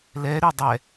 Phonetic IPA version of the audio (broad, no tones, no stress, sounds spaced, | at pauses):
l ɛ ɾ y dˤ ɛ